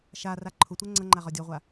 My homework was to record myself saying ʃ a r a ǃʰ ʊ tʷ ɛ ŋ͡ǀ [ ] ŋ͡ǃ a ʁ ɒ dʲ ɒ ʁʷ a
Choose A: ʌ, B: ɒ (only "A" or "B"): A